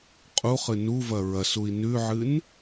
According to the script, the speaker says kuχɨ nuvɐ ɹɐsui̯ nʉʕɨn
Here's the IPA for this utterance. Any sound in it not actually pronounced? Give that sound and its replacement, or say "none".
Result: k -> qʼ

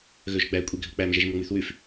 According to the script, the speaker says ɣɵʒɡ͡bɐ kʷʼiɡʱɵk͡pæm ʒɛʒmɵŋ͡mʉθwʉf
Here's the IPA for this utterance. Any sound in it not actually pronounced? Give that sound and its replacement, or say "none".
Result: ɐ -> æ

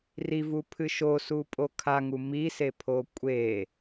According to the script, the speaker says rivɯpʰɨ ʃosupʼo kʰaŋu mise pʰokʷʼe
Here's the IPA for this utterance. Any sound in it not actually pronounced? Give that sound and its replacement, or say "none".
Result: ɯ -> u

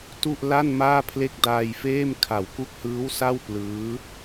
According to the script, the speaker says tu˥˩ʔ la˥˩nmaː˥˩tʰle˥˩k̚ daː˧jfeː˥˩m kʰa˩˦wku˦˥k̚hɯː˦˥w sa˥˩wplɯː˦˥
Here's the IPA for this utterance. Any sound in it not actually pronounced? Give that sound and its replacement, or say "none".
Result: tʰ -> pʰ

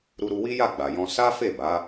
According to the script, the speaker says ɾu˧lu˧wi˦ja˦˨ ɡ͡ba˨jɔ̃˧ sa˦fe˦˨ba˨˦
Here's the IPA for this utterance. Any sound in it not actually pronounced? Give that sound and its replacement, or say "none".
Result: l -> ɾ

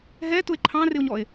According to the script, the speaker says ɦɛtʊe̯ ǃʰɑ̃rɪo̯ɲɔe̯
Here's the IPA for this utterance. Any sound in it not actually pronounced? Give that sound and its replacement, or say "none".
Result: none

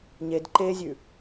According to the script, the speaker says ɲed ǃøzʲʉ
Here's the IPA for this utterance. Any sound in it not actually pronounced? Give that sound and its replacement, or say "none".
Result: ø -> e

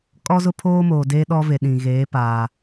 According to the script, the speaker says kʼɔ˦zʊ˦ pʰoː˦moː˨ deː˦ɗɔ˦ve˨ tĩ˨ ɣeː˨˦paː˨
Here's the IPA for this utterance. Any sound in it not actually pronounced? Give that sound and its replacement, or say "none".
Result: t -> ɗ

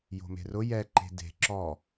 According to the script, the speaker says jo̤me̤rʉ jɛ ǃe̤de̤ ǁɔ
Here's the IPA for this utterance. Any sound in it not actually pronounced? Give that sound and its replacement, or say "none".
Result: ʉ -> ʊ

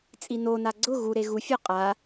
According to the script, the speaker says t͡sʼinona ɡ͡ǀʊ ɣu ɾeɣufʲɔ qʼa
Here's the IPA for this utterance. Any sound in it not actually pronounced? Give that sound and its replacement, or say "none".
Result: none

